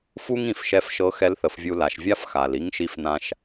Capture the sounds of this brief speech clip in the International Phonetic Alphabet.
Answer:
f u˥ ŋ ĩ˩˧ f ʃ ɛ˧˥ f ʃ ɤ˧˥ x ɛ˧˥ l θ ə˩˧ f vʲ u˧ l a˩˧ ʃ vʲ a˥ f x a˩ l i˧˥ ŋ ʃ i˧ f n ã˧ ʃ

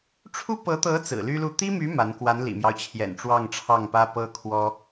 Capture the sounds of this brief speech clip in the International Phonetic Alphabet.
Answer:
ʈ͡ʂʰ u˥ p ɤ˧˥ t̪ ɤ˧˥ t͡s ɹ̩˨˩ l y˥ l u˥˩ t̪ i˥ m y˧˥ m a˧˥ n k w a˧˥ n l ḭ˨˩ m j ɑ˦ ʊ̯ t͡ɕʰ j ɛ̰˨˩ n ʈ͡ʂ w ɑ˥˧ ŋ ʈ͡ʂʰ ɑ˥˩ ŋ p ä˥ p ɤ˥ kʰ w ɔ˥

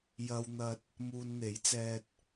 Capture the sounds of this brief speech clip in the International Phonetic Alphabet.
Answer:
j ɐ˧ w n̪ ɐ˧ t̚ | m uː˧ n n̪ e˨˥ j t͡s ɛː˧ t̚

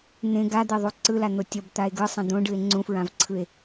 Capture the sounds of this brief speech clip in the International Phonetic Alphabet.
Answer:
n̪ ẽ ɡ a d̪ e ðˤ u ǀ ɯ l a n̪ o tʲ ʌ b t̪ a e̯ ɡ ɯ sˤ ɛ̃ d̪ õ ɖ ɯ e̯ ŋ͡ǀ ũ f ɹ ã v ǀʰ ɯ e̯

